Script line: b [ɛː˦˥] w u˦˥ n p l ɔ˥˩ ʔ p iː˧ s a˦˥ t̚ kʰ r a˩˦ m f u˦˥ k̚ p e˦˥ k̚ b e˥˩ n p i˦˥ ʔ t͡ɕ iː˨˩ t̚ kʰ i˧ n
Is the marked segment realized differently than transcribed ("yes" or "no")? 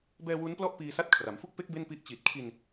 yes